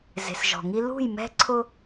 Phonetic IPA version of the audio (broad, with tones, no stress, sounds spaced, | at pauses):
z e̤˨ s ʒ ɔ̤˨ ŋ i˦ l ṳ˦˨ j m ɛ̤˦ ǀʰ ʊ˦